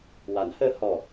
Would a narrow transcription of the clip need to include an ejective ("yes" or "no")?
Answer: no